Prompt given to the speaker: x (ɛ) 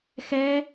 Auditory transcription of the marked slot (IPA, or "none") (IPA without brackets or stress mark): ɛ